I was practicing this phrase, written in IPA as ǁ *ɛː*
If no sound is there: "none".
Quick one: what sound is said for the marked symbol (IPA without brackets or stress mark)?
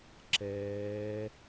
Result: ɛː